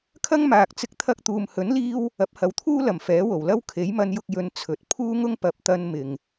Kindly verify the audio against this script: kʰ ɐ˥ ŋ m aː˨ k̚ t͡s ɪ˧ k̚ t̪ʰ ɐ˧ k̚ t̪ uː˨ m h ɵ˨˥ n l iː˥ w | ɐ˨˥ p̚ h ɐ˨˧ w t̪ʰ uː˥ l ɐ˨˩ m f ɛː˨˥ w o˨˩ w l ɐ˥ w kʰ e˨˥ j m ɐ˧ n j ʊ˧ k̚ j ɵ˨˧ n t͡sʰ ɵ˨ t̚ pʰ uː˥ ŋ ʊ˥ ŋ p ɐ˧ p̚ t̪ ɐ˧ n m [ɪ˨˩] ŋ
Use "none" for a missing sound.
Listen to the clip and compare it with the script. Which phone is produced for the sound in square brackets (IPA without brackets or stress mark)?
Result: ɪ˨